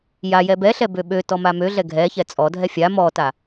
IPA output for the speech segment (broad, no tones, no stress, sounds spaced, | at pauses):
j a j ɛ b ɛ ɬ ɛ b ø ɓ ø t ɔ m a m ø ɮ ɛ ɡʱ ɛ ç ɛ t͡sʼ ɔ dʱ ɛ fʲ a m ɔ t a